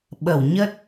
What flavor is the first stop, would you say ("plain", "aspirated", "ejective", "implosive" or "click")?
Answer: implosive